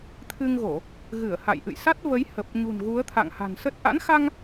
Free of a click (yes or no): yes